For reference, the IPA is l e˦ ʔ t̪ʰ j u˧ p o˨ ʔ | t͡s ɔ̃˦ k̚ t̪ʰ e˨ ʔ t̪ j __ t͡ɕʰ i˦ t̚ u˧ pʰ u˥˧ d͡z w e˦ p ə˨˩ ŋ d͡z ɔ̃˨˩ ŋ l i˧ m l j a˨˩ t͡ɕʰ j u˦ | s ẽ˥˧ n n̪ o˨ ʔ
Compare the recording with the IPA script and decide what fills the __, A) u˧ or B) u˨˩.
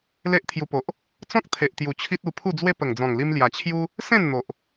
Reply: B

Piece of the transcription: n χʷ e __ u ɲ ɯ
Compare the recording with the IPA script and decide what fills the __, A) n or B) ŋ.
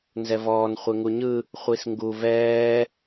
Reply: B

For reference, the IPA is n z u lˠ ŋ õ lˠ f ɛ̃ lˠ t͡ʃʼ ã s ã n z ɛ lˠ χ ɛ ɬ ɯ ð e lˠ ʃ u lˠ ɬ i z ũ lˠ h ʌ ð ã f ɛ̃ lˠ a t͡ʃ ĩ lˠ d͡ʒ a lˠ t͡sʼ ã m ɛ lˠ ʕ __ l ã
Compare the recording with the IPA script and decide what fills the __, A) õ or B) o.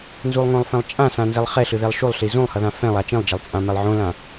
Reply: A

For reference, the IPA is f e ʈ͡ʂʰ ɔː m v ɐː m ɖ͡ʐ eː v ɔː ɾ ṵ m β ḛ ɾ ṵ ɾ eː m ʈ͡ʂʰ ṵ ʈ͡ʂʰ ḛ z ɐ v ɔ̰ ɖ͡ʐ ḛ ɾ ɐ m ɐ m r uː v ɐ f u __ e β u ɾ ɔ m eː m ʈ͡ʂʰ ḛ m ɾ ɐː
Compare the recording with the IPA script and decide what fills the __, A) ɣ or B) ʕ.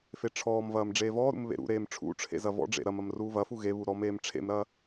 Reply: A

